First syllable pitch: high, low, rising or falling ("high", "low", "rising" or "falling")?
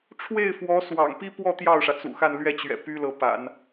falling